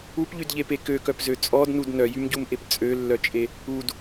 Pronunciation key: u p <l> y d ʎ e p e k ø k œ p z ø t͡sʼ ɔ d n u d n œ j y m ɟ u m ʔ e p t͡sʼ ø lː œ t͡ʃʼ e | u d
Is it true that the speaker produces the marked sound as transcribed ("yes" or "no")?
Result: no